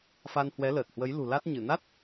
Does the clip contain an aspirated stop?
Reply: no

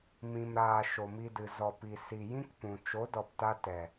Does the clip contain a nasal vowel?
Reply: yes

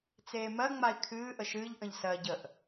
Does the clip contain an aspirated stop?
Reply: yes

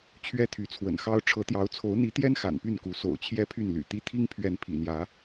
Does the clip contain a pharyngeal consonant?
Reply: no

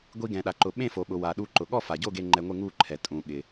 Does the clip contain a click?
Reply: yes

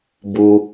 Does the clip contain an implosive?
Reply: no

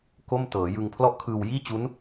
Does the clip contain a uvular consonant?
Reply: no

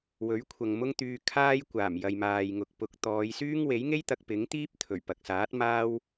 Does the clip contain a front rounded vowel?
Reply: yes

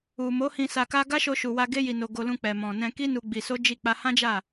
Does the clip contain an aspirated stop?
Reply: no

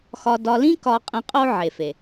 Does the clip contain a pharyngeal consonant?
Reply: yes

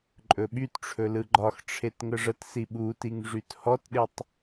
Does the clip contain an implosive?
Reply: yes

